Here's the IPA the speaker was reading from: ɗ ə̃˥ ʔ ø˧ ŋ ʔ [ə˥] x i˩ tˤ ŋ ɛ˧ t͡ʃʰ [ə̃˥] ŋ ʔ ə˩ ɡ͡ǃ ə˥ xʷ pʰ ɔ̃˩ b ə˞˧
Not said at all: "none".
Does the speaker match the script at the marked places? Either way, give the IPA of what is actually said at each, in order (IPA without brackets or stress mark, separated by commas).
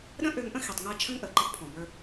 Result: ə̃˥, ə̃˥